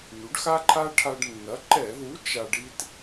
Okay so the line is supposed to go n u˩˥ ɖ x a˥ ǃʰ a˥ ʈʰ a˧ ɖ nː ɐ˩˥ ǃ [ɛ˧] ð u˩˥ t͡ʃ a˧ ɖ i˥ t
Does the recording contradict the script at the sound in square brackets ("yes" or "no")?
yes